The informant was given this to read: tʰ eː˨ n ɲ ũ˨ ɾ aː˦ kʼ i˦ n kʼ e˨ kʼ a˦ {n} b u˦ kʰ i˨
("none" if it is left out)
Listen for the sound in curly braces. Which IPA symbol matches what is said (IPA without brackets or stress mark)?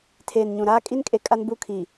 n